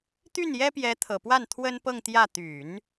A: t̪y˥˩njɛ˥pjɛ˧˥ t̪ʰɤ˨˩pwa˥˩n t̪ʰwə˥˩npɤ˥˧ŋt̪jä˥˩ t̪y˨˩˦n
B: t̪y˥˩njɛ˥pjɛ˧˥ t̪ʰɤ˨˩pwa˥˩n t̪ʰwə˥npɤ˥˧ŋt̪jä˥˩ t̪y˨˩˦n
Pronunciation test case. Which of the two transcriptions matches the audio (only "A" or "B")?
B